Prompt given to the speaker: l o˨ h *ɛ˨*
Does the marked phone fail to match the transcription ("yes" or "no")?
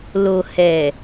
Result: no